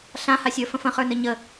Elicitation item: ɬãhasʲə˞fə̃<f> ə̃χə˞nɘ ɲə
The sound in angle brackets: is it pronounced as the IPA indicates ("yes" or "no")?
yes